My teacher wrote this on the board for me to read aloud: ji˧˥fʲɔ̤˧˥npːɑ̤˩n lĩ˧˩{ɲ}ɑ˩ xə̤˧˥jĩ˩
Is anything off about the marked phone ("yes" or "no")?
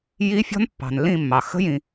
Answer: yes